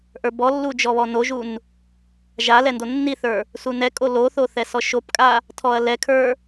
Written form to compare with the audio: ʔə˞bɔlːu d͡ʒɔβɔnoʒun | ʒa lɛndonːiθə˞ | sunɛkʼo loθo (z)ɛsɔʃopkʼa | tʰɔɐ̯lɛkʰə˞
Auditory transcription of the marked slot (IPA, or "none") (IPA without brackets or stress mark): θ